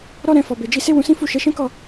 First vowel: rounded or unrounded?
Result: rounded